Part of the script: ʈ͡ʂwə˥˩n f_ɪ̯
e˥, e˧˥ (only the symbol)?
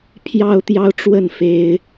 e˥